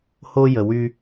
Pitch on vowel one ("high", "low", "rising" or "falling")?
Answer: high